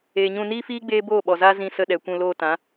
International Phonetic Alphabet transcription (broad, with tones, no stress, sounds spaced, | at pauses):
eː˨ ɲ ũ˧ n iː˦ f iː˦ ɡ͡b eː˦ b oː˦˨ ɓ ɔ˨ z aː˦ z ĩ˧ s ə˧ ɗ ɛ˨ kʷ ũ˧ l oː˧ t ã˨˦